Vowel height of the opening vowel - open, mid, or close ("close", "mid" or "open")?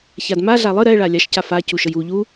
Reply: open